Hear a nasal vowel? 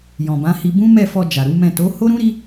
yes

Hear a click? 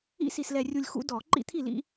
yes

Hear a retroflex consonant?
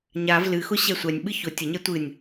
no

